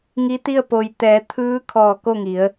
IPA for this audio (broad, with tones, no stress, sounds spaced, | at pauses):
ŋ i˧˥ t̪ i˥˨ ə̯ p o˩ j t̪ ɛː˩˧ t̪ʰ ɯː˧˥ kʰ ɔː˧˩ k o˥˨ ŋ i˩˧ ə̯